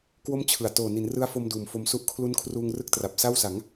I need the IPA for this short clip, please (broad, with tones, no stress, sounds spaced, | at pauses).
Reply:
k w o˥˩ m t͡ɕʰ ɯ˨˩ a̯ t oː˨˩ n i˩˦ n r ɯ˦˥ a̯ f o˧ m d uː˨˩ m f o˧ m s u˥˩ ʔ kʰ l u˦˥ n kʰ r uː˧ ŋ r ɯ˦˥ k̚ t r a˨˩ p̚ s a˥˩ w s a˩˦ ŋ